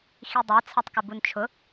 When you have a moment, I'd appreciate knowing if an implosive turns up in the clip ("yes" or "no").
no